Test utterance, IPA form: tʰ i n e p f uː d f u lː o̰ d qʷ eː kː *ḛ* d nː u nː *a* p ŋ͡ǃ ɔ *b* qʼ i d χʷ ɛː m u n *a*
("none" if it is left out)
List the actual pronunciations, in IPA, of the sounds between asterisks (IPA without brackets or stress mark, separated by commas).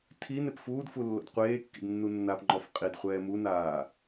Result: ḭ, a, f, aː